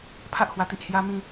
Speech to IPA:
pʰ a˦ ʔ h w a˨˩ t̪ i˨ ʔ h j a˧ m ĩ˧

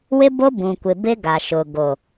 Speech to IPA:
w ɪ˦ b o˦ b ũ˨ kʷ ɪ˨ b ɪ˦ ɡ a˨ ʃ ʊ˨ ɡ o˨

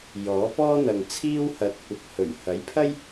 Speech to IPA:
j ɔː˨˥ p ɔː˥ n̪ ɐ˨ ŋ t͡sʰ iː˥ w h ɐ˨˥ t̚ kʷ ɐ˨ k̚ h ɵ˨˩ ɥ h ɐ˨˥ j pʰ ɐ˥ j

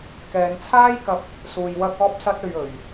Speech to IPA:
k ɛː˨˧ n t͡sʰ aː˥ j k ɐ˧ p̚ | s uː˧ j w ɐ˥ k̚ ɔː˥ p̚ s ɐ˥ t̚ ɵ˧ ɥ ɵ˨ ɥ

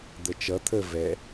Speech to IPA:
d̪ ə t͡ʃ ʌ t̪ʰ ə v ɛ

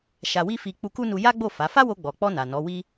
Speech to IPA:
ʃ a˧ w i˦ f i˧ k͡p u˧ k u˦ n u˧ j a˦ ɡ͡b o˦˨ f a˨˦ f a˦ w o˧ ɡ͡b ɔ˨ k͡p ɔ˧ n a˨ n ɔ˨˦ w i˦

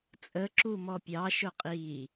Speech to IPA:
t͡sʼ ə ǁ u m ɔ pʲ ɑ ʃ ʊ qʼ i

